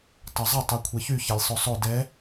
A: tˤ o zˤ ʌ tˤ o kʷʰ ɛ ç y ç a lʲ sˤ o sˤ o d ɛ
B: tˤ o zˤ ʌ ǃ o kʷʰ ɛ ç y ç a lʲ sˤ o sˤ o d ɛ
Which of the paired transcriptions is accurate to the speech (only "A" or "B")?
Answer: A